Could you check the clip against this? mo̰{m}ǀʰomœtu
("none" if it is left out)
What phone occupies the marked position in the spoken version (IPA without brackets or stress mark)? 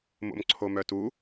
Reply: m